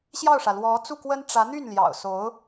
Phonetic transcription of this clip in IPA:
ɕjɑ˥˩ʊ̯ʂä˩ lwɔ˧˥ t͡su˥˩kwə˥n ʈ͡ʂä˧˥n̪y˥˩nljɑ̰˨˩ʊ̯so˧˥ʊ̯

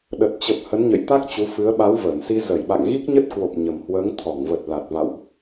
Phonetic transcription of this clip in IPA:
ɗə˨˩t̚t͡ɕə˨˩p̚ hə˨˦nɲə̰˧˨j t̪a˦˥k̚t͡ɕu˨˦ fɨ˨˦ə̯ ɓa˨˦wvəː˧˩nsi˧ zə˧˩jɓa̰˧˨ŋɣi˦˥k̚ɲə˦˥t̚ kwo˨˩p̚ ɲə˨˩mhwəː˨˦ŋ t̪ʰɔ˧˩ŋvə˨˩t̚ la˨˩t̚va̰˧˨wʔ

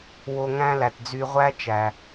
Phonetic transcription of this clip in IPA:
wo˧ŋæ̃˦læ˨t d͡zy˧ʁʷæ˦ t͡ʃæ˨

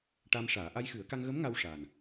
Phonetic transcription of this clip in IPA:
ʈa˧mʂaː˨˩˦ ʔa˧jxɨ˨˩˦ə̯ka˧ŋɣə˧˥m ŋa˧wʂa˨˩n

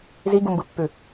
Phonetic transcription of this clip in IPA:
ziɡumbɯpːʉ

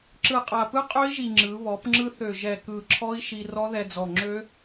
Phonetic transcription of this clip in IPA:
ǁɯ˨˩qʼa˨˩pɯ˦˥ qʼø˦˥i̯ʒi˨˩ ŋ͡ǁɯ˩˧ βɔ˩˧pŋ͡ǁɯ˧θø˨˩ ʒɛ˨˩kɯ˨˩ǁʰɔ˦˥i̯ ʃi˧rɔ˦˥ðɛ˧d͡zɔ˨˩ ŋ͡ǁø˦˥

